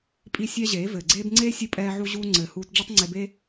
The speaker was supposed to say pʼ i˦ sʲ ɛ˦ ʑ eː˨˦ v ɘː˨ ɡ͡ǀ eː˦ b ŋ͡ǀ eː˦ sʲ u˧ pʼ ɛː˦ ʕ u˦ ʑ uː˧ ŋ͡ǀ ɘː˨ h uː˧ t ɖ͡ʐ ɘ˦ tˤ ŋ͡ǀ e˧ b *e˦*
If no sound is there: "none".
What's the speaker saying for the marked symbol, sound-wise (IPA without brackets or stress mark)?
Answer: e˦